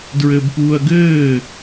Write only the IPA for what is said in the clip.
d ɹ ɘː b p uː ɐ̯ ɡ ɘː

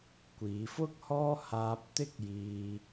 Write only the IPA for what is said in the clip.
kʷ iː˨˧ f ʊ˥ k̚ h ɔː˥ h aː˧ p̚ t̪ ɪ˥ k̚ j iː˧

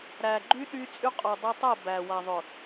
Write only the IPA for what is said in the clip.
ɾ æ˨ ɡ͡ǃ y˦ ɗ y˦ t͡sʼ y˦ qʼ o˨ dˤ o˦ tˤ o˦˨ b æ˨ w a˨ ðˤ ʊ˨

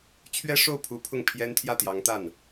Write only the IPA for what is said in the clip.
t͡ɕʰ ɥ ɛ˥ ʂ o˥˩ ʊ̯ pʰ u˧˥ pʰ ʊ˥˩ ŋ pʰ j ɛ˥ n t̪ʰ j ä˥˩ t̪ j ɑ˧˥ ŋ t̪ a˥˩ n

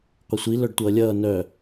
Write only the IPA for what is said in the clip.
qʷ ɛ sʷ i l œ ɖ tʷ ʌː lʲ ʌː n œ

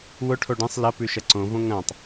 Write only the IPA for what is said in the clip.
w ʊ ʈʰ o ɖ ẽ sˤ l ɐ p ʉ ʃ ɐ ǀ õ v õ ŋ ɐ̃ tˤ

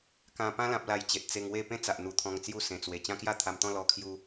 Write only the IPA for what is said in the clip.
k ã˧ p ã˧ l ã˨ p̚ l a˨˩ j t͡ɕ e˨ t̚ t͡s e˧ ŋ w e˥˧ p ẽ˦ t͡s a˨ ʔ n̪ u˧ t̪ʰ ɔ̃˧ ŋ t͡s j u˥˧ s ẽ˧ t͡s w e˧ t͡ɕ ã˦ k j a˥˧ t̪ʰ a˧ m t̪ ɔ̃˥˧ l ɔ˦ kʰ j u˦

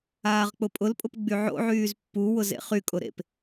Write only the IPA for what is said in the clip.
aː ʁ k͡p ʊ pʼ ʊ l pʼ ʊ p ɡ͡b y ʕ o̰ ʕ yː z pː u w ʊ z ḛ χ y kʼ ʊ ɾ ḛ p

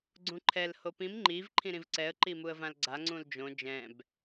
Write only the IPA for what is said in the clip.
ɡ͡ǀ ũ ǃʰ ɛ l h o p ĩ m ŋ͡ǃ i v ǃʰ ĩ ɾ ĩ v ǀ ɛ ə̯ ǃ i m u ə̯ v ã l ɡ͡ǀ a ŋ͡ǀ ũ l d͡ʒ õ d͡ʒ ɛ̃ b

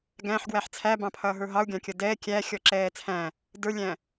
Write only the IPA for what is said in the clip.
ɡ æ̃ ħ ɡ w æ ħ t͡sʰ æ b ɑ̃ pʰ ʌː ɦ ə˞ ɦ ɑ u̯ ɡʲ ɑ̃ kʲ ʌ d ɛː kʲ æ xʲ ɔ ǁ ɛː t͡sʰ æ̃ | d ə˞ lʲ æ̃

